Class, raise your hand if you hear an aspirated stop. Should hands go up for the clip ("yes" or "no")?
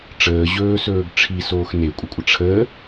yes